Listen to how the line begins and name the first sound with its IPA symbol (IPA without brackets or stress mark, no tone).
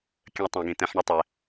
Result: kʲ